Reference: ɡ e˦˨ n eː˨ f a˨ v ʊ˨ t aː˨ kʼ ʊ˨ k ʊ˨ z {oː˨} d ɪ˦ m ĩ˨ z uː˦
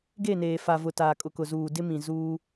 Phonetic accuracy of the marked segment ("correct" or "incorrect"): incorrect